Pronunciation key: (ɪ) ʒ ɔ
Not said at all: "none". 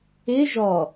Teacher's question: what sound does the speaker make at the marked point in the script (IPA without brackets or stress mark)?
ɪ